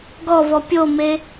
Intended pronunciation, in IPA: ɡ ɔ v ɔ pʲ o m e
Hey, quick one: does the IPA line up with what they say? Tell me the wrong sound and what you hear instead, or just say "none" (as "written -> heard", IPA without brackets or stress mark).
none